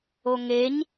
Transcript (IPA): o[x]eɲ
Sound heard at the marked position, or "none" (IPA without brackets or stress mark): ŋ